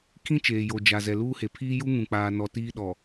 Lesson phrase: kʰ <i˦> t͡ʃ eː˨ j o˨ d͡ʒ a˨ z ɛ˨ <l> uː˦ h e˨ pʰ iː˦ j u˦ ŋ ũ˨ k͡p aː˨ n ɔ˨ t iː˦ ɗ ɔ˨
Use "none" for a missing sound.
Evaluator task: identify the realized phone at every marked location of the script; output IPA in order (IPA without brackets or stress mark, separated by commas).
ĩ˦, l